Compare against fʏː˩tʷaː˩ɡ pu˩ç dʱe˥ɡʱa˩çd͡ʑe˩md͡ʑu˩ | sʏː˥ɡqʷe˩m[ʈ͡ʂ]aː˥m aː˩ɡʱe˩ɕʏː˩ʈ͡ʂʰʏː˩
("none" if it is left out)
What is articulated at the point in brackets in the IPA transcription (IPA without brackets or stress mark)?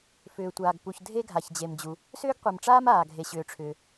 ʈ͡ʂ